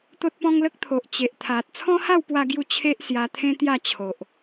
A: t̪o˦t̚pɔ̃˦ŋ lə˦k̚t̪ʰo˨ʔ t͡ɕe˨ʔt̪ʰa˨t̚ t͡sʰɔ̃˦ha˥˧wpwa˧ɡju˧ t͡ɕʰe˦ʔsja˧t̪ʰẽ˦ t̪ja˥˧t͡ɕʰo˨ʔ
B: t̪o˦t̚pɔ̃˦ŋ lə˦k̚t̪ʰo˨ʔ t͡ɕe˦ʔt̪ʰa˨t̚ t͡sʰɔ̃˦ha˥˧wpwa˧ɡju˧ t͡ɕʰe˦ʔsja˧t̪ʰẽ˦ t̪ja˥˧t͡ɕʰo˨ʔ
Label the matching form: A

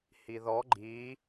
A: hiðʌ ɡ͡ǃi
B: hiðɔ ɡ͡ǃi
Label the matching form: B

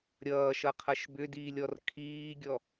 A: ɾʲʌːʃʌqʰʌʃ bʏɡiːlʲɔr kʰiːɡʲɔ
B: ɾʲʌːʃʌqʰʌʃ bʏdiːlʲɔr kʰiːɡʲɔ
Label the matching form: B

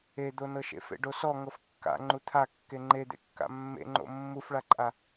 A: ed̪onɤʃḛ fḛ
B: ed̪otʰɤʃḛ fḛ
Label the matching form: A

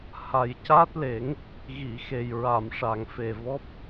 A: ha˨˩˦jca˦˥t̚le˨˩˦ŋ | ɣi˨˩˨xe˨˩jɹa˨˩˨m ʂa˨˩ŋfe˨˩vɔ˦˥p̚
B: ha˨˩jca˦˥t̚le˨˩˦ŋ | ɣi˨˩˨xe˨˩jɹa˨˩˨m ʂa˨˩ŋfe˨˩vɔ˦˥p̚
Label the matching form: B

